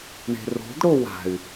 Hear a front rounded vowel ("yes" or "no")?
yes